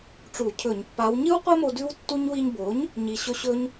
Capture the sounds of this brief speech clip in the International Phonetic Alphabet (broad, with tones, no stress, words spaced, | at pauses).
ʈ͡ʂu˧˩˧cʰɵ˧˩˧ɲpːa˧˥w ɲɨ˥wqʷɐ˥mo˧ dʉ˥wtːu˥ɲ wi˧ɲbo˩˥ɲ | ɲi˧ɕɵ˥ ɕɵ˥ɲ